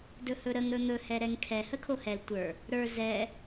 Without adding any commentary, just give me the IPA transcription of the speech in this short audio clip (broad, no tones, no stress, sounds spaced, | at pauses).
d ɵ h ɵ ɾ ə ŋ ɾ ɵ n̪ ɵ h ɛ ɾ ɛ ŋ kʰ ɛ h ə kʰ o h ɛ l tʷ ə˞ | ɾ ə˞ z ɛ